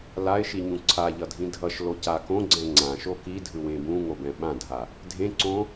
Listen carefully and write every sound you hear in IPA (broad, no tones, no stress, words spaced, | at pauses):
laɪ̯ʃiɲũ ǀʰaʎʌdʱĩ dʱʌʃloca kõɡ͡ǀɛ̃ ŋ͡ǀãʃo kidʱɯwẽ bũŋobɛ̃ ɓãdʱa | dʱẽǀõ